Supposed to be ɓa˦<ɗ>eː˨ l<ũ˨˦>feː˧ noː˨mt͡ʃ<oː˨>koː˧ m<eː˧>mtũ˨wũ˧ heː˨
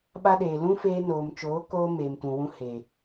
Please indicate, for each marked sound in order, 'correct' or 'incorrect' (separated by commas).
correct, incorrect, incorrect, incorrect